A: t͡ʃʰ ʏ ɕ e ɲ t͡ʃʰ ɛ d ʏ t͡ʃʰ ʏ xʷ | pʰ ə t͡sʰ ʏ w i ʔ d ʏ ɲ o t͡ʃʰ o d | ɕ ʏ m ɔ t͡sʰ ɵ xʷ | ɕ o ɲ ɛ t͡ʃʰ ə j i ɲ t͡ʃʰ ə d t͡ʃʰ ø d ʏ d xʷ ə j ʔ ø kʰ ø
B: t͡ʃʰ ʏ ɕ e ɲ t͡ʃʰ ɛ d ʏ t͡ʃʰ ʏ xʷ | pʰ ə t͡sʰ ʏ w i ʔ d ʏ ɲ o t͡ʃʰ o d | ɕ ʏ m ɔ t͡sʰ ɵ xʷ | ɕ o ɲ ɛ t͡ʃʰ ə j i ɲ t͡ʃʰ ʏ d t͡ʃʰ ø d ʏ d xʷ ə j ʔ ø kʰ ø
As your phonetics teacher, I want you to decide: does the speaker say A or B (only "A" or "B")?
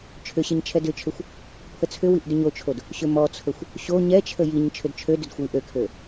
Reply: B